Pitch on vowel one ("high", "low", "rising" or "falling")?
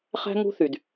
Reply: high